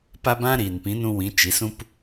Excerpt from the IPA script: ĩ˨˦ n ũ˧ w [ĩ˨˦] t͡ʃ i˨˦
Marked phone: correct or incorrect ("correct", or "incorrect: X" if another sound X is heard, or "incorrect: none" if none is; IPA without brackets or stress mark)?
correct